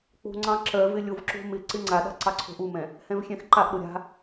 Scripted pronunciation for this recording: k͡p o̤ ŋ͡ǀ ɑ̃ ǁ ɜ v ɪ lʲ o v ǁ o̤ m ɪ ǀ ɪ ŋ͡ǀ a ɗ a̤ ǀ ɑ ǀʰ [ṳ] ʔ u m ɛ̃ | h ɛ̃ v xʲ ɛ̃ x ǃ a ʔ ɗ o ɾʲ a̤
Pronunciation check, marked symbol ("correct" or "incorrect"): incorrect